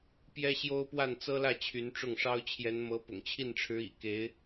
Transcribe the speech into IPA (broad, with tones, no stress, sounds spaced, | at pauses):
p j ɛ˥ ɕ j o˥ ʊ̯ p w a˥˩ n t͡s ɤ˥ l ä˥˩ t͡ɕʰ y˧˥ n ʈ͡ʂ ʊ˥˩ ŋ ʂ ɑ˥ ʊ̯ t͡ɕʰ j ɛ˧˥ n m ɤ˧˥ p ʊ̰˨˩ ŋ t͡ɕʰ i˥˩ n ʈ͡ʂʰ ɻ̩˧˥ ḭ˨˩ k e˧˥ ɪ̯